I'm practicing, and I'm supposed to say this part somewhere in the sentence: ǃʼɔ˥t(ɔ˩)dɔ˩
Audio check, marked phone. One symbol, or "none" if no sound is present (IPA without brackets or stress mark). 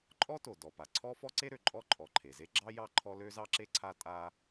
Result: o˩